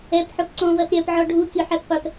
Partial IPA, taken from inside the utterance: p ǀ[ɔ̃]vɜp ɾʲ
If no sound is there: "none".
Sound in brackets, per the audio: ɔ̃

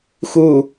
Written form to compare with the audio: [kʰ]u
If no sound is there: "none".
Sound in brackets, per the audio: x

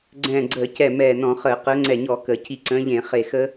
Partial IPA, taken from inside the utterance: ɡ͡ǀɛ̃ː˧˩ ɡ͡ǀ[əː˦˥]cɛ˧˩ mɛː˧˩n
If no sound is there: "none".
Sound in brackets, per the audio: əː˧˩˧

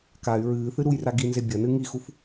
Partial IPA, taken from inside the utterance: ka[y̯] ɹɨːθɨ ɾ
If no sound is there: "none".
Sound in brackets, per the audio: y̯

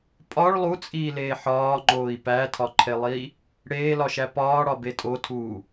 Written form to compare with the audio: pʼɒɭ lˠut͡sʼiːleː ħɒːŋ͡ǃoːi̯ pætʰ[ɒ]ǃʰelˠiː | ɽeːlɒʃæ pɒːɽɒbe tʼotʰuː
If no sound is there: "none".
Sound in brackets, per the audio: ɒ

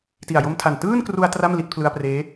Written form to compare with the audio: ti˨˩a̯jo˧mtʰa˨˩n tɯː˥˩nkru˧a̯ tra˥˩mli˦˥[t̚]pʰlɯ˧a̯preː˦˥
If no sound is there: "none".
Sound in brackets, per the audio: t̚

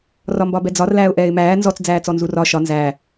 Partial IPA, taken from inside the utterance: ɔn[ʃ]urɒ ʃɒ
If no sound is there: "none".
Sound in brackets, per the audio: z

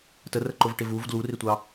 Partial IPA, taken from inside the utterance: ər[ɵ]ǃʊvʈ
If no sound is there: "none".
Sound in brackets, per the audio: ə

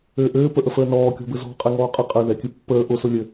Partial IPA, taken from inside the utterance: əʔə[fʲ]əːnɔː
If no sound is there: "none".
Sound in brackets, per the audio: f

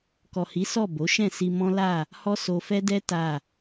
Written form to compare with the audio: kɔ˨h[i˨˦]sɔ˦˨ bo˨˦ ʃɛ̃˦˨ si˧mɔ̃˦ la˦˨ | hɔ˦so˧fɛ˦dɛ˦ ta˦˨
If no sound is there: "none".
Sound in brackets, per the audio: i˨˦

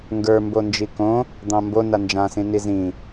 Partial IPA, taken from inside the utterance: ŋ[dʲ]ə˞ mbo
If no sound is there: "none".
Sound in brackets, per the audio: ɡ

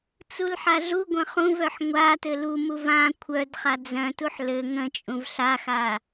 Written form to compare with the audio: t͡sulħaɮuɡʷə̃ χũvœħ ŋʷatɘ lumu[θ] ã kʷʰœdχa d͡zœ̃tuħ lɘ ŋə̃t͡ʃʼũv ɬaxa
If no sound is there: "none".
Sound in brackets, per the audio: v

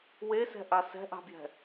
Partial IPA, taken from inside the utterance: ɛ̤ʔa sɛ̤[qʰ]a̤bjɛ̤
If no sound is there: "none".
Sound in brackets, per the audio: ʔ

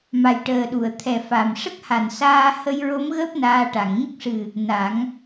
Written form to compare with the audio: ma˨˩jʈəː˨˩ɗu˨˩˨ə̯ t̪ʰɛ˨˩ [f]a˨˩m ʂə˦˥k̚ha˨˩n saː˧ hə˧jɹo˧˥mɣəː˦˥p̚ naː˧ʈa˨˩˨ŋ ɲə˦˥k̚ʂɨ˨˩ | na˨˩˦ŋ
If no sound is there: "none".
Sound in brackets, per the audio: f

